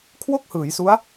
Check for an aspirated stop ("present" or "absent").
present